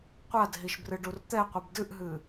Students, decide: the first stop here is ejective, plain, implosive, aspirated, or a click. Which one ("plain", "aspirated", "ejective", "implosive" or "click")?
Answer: plain